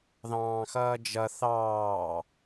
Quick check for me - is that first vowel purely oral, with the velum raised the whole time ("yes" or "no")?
no